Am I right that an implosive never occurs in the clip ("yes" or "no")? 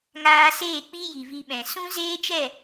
no